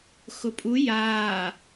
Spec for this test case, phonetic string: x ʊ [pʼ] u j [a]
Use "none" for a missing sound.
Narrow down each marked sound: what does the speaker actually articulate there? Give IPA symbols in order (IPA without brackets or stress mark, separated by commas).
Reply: pʼ, aː